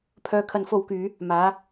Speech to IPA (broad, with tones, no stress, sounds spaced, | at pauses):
pʰ œː˧ kʰ ɐ˧ n f o˧ w k yː˨˧ | m aː˨˥